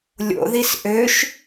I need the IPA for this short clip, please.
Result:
lʲ o̰ ð i s ʔ ø ʃ

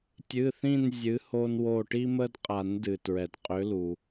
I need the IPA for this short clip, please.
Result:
tʲ ɨ˩˧˩ θ ĩ˦˨ n zʲ ɨ˨˥ h o˦ n w o˦˨ ʈ i˦ m ə˦ d qʼ a˨˩˦ n d ɨ˩ t ɹ ɛ˩ d qʼ ʏ˨˥ l u˩

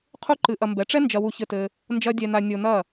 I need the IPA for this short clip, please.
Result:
qʰ u˦ ǃ ɨ˧ ʔ ɐ˧ m b ɛ˨˦ ʈ͡ʂ ɛ˦ n d͡ʒ ɐ˧ w u˧ ç ɘ˧ t ɘ˧ | n d͡ʒ ɐ˦ dʲ ɛ˧ n a˧ nʲ o˧ n ɐ˦˨

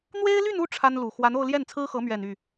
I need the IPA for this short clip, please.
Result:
n̪ w e˥ ɪ̯ l y˥˧ n u˥˩ ʈ͡ʂʰ a˥ n l u˨˩ x w a˧˥ n o˥˧ ʊ̯ l j ɛ˥˩ n t͡sʰ ɹ̩˥ x ɤ˧˥ m ɥ ɛ˨˩ n y˥˩

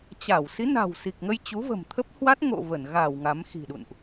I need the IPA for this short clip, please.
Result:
t͡ɕ a˧˩ w s i˨˦ n a̤˨˩ w s i˨˩ k̚ ŋ ə˧ j t͡ɕ u˨˦ v ə̤˨˩ m t̪ʰ ə˦˥ p̚ h w a˦˥ t̚ ŋ o̰˧˨ v ə˧˩ n ɣ a˧˩ w ŋ a˨˦ m x i̤˨˩ ɗ ṵ˧˨ n ʔ

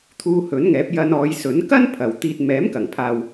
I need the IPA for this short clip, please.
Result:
t̪ʰ uː˧ h ɵ˨˥ n ŋ ɛː˨˥ p̚ j ɐ˧ n ɔː˨˧ j s ɵ˨˥ n k ɐ˥ n pʰ ɐ˨ w t̪ iː˧ t̚ m ɛː˨˥ m k ɐ˨˩ ŋ pʰ aː˨ w

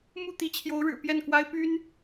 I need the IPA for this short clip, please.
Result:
m u˥˩ t̪ i˧˥ t͡ɕʰ j o˧˥ ʊ̯ ɻ ɻ̩˨˩ p j ɛ˥˩ n k w a˥ ɪ̯ p y˥ n

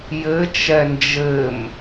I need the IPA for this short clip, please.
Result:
j ɘ t͡ʃ ɛ n d͡ʒ ɘ m

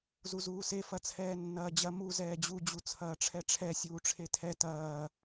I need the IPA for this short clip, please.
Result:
z u z uː s e f ɐ t͡sʰ ɛː nː ɐː d͡ʑ ɐ m u z ɛː d͡ʑ u d͡ʑ u t͡sʰ ɐː ʈ͡ʂʰ ɛ ʈ͡ʂʰ ɛ sʲ uː ʈ͡ʂʰ e tʰ ɛ t ɐː

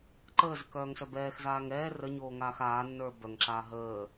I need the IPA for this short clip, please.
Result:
ǃ əː z ə k œː ŋ s œ b ɛː x z aː ŋ ɛː r ə ɲ oː ŋ aː x aː nː ə˞ b œ ŋ ǁ aː ɦ əː

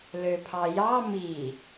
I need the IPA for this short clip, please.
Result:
l ø pʰ ɑ j ɑ m i

